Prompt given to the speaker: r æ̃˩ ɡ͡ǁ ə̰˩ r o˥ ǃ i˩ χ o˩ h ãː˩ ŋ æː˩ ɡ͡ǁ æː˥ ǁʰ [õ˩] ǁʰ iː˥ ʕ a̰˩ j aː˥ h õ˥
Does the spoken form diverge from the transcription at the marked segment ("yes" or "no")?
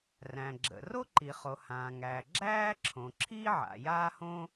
no